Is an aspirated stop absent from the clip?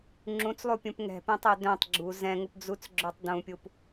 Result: yes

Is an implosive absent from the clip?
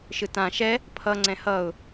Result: yes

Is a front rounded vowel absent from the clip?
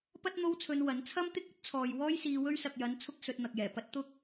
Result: yes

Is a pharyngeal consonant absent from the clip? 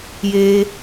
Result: yes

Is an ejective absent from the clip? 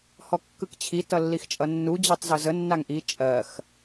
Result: no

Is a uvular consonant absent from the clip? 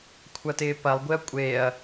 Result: yes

